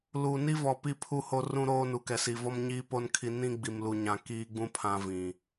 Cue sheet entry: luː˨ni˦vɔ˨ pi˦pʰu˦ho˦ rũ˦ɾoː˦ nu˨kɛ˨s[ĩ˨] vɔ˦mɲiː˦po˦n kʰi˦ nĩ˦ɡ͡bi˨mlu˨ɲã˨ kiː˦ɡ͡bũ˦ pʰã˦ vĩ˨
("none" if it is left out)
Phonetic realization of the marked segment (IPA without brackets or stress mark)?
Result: i˨